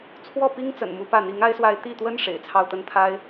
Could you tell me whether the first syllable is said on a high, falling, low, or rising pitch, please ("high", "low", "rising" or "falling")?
falling